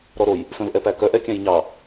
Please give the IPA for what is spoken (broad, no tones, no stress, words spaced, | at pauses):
ɾɔɾoj | fœ̃vʔɛpækœ ʔɛkʲæ̃jɲɑ